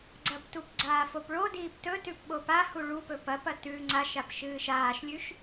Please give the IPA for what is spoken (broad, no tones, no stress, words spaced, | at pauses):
ɡ͡ǀɐptup ɡ͡ǀaːfopɭodiːp tɵtʉp ɓopahu ɭupɵ pɐpɐ tʉ ŋ͡ǀaʃap ʃɨːʃaːʃlʲʉʃ